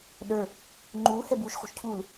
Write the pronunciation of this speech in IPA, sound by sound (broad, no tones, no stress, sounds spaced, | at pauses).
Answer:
ɗ ə˞ | ŋ͡ǃ uː h ɛ b uː ʃ χ ṳ ʃ cʰ u l